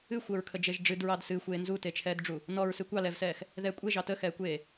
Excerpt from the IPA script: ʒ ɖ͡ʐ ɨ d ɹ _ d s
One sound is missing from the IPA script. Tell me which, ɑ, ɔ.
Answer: ɑ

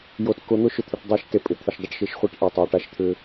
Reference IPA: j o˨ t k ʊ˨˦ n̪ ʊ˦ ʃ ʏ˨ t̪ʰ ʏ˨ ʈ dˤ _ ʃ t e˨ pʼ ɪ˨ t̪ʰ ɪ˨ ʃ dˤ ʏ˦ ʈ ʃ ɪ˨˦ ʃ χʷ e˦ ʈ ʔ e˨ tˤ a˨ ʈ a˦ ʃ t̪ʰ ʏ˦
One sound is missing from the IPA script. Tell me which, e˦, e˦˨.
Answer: e˦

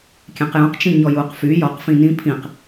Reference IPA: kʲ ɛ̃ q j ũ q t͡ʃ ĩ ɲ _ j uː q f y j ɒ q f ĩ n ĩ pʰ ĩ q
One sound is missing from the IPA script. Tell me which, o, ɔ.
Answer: ɔ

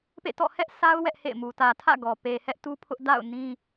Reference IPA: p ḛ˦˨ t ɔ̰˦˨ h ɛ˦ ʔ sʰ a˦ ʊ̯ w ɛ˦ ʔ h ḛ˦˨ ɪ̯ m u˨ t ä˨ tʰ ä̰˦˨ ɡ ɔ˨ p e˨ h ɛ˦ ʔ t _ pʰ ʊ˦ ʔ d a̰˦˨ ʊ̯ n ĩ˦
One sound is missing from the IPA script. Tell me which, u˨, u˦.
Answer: u˦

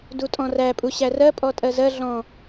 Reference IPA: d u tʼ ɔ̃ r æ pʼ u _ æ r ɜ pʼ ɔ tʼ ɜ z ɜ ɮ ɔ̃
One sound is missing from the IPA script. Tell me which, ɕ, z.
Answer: ɕ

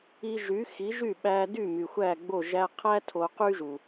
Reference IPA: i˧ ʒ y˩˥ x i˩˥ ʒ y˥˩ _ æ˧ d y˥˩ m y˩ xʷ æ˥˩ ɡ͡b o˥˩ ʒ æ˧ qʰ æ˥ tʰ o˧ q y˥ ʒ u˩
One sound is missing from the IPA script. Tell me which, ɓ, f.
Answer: ɓ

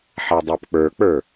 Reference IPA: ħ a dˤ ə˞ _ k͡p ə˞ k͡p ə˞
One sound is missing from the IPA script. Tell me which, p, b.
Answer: p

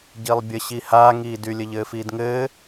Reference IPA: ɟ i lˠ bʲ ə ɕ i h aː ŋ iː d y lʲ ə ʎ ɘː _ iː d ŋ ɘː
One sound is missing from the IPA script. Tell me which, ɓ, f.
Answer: f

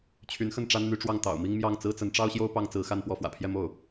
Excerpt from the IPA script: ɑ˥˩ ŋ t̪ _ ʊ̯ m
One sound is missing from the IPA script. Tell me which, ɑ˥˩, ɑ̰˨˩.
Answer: ɑ̰˨˩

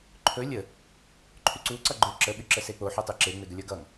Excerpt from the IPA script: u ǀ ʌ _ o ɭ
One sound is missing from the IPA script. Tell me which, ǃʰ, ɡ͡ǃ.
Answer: ɡ͡ǃ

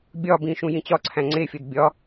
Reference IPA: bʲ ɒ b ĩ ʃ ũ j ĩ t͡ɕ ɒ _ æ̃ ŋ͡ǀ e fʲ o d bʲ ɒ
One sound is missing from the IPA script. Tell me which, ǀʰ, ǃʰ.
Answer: ǀʰ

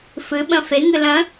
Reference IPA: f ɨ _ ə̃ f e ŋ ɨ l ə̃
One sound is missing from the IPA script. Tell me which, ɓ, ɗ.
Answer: ɓ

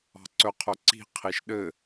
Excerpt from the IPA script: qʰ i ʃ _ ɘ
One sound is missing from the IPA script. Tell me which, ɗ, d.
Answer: ɗ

